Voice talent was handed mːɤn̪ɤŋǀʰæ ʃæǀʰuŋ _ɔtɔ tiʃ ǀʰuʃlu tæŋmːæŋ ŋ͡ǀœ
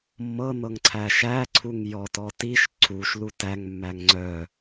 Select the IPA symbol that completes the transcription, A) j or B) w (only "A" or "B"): A